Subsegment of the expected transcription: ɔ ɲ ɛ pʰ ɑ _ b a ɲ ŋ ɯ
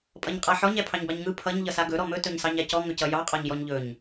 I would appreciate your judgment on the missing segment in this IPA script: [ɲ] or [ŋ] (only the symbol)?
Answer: ɲ